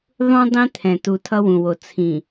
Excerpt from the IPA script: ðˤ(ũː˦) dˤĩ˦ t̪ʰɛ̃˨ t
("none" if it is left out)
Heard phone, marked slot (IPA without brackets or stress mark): ũ˦